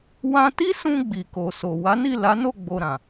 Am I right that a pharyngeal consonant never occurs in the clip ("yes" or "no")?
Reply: yes